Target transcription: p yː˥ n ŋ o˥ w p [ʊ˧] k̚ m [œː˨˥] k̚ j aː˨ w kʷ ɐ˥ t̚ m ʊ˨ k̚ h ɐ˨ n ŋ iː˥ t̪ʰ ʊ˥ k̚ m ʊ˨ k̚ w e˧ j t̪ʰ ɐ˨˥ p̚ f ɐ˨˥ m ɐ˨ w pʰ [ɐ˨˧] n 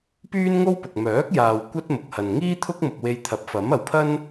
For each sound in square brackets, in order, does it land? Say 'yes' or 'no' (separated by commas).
no, yes, no